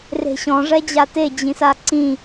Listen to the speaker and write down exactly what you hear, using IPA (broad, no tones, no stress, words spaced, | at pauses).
re̤ɕɔ̃ ʐɛd͡ʑate d͡ʑĩsaǀĩ